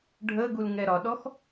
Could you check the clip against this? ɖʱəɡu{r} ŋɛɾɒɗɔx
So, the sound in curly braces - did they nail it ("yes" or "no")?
no